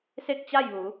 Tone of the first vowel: falling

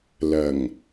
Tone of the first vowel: low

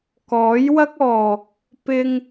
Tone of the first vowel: rising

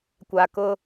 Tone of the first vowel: low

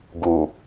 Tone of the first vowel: low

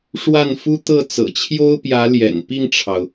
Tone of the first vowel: falling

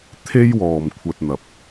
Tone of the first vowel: high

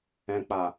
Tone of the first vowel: low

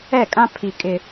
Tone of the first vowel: falling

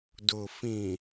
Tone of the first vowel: low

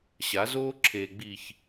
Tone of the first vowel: rising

